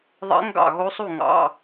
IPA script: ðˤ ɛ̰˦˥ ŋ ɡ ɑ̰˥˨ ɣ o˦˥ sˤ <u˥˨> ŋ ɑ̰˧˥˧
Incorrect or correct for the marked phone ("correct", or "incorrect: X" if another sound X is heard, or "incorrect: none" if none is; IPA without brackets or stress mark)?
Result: correct